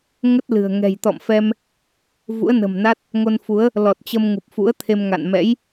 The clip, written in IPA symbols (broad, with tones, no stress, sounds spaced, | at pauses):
ŋ ə˦˥ t̚ l ɨ̤˨˩ ə̯ ŋ ɛ̤˨˩ j t̪ ɔ̰˧˨ m f ɛ˧ m | v ṵ˧˥ ə̯ n ə̤˨˩ m n a˦˥ t̚ | ŋ o˧ n f u˨˦ ə̯ | l ɔ˨˩ t̚ t͡ɕ ə˧ m ŋ u˨˩ p̚ f ṵ˧˥ ə̯ t̪ʰ e˧ m ŋ a̰˧˨ n m ɛ̰˧˥ j